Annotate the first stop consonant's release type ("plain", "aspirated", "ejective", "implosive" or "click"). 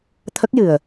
aspirated